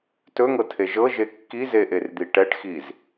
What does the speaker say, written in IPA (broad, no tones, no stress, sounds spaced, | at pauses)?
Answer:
t ɵ ŋ ɤ tʰ e ʒ ɤ ʒ e kː i z e ʔ e r d̪ i ʈ ɛ ʈ x i z